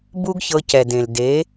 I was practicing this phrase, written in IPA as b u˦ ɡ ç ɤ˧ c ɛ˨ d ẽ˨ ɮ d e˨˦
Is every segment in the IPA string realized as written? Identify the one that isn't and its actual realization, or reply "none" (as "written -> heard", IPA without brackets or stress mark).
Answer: ɮ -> l